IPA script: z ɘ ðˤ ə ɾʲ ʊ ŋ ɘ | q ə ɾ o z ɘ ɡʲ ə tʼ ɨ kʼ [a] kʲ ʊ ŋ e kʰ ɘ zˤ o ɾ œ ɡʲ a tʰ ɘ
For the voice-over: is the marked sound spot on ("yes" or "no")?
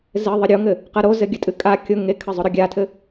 yes